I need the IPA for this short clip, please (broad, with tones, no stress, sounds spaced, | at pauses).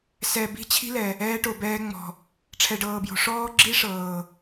s ɛ˨ b i̤˦ t͡ɕʰ i̤˦ l ɛ˨ | ɛː˦ ʈ o˨ b ɛː˦ ŋ͡m ɔ̤˨ | ʈ͡ʂʰ ɛ˨ ɖ ɤː˨ b j o̤˨ ʂ ɔː˦ ɡ͡ǁ i˦ ʂ ɤː˨